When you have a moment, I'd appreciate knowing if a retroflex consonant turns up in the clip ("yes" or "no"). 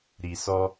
no